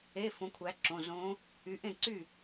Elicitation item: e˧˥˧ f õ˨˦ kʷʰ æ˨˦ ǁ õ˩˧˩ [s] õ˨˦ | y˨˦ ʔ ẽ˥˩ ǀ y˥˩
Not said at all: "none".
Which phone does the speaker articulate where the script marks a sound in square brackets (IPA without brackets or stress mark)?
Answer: z